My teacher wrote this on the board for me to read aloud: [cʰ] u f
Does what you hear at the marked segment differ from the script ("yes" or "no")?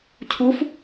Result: no